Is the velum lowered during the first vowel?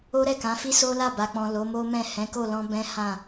no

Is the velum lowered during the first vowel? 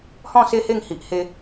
yes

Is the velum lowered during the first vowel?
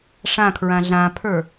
yes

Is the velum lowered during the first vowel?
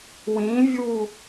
yes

